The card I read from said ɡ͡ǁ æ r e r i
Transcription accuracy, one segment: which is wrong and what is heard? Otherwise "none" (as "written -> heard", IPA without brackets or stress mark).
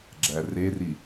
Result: none